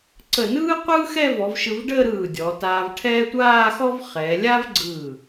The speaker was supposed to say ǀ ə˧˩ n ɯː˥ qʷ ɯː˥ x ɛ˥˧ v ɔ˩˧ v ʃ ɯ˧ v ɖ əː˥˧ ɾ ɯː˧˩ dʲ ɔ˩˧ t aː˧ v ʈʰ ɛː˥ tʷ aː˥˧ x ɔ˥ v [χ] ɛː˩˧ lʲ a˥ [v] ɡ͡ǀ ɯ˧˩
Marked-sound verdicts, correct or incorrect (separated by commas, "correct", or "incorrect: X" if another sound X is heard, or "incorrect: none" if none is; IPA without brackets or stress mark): correct, correct